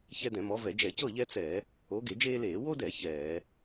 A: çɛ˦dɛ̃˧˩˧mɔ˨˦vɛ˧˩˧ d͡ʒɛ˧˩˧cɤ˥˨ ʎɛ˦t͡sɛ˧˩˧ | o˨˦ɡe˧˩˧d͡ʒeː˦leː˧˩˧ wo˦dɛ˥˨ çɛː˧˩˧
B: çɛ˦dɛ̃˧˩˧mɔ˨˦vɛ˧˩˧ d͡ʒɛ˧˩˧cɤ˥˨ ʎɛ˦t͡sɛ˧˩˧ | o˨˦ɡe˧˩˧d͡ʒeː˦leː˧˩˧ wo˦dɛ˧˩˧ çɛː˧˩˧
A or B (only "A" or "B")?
B